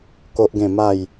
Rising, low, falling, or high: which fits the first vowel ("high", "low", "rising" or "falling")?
high